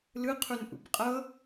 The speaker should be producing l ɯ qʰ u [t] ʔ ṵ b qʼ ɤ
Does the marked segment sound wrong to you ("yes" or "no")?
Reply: yes